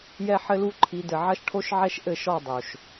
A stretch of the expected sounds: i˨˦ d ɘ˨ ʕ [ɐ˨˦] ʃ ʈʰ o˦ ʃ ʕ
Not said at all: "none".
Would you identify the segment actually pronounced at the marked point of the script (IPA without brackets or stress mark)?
ɐ˦